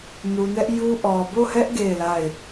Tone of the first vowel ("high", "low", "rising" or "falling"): low